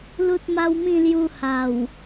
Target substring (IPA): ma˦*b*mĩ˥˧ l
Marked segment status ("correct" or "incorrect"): incorrect